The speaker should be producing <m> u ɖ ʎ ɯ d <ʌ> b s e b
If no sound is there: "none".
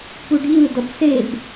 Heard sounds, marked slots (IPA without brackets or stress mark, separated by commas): p, ʌ